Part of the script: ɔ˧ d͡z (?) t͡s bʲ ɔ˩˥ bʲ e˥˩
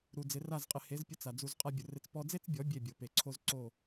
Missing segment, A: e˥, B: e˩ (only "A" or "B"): A